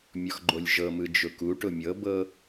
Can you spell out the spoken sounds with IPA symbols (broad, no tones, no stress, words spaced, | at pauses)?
mʲɔxɡ͡ǃolʲʒɤmɯ d͡ʒʊkuʈʊ mʲɤbɤ